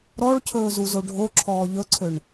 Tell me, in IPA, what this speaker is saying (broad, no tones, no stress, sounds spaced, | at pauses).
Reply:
ɾ ɔ ɭ cʰ ɵː z u z o ɖʱ o ǁʰ ɔː ʎ ɵ ǀʰ ø ɳ